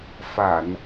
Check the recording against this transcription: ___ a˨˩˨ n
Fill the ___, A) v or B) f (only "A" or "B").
B